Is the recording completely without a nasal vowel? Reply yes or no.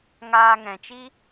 no